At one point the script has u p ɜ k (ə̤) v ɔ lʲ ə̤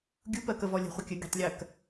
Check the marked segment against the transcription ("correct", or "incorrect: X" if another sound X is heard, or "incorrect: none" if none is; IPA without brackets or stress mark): incorrect: ə